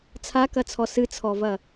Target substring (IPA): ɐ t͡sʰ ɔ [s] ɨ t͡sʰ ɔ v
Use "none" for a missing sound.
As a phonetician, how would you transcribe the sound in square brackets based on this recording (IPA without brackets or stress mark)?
s